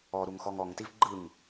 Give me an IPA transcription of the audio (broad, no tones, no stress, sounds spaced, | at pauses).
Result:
ɔ ɾ u ŋ x ɔ ŋ ɔ ŋ t i v ɡ͡ǃ ɯ ŋ